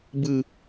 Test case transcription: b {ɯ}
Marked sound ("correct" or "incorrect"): correct